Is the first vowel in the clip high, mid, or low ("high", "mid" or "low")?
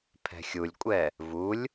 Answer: mid